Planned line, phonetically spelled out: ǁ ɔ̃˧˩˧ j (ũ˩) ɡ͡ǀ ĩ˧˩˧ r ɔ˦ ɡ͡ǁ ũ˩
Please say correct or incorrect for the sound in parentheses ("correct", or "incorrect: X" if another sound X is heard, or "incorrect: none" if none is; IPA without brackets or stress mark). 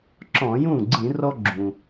incorrect: ũ˥˩